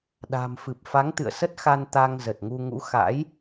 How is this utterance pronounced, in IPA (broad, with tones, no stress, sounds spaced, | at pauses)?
ɗ a̤˨˩ m f ɨ˨˩ p̚ f a˨˦ ŋ t̪ ɨ̰˧˨ ə̯ s ə˦˥ t̚ x a˧ n t̪ a˧ ŋ z ə˨˩ t̚ ŋ u˧ ŋ ṵ˧˥ x a̰˧˥ j